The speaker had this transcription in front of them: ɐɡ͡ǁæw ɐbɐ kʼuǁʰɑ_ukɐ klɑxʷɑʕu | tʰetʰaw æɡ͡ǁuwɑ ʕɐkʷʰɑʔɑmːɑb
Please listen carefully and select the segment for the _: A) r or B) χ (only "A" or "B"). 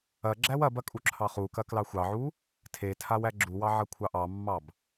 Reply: B